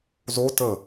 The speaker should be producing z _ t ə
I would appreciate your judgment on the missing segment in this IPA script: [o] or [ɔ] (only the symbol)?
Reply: o